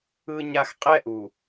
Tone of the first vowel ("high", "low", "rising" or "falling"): low